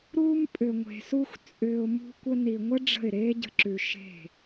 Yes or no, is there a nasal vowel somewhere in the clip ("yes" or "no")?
no